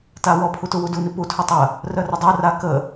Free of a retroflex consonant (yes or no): yes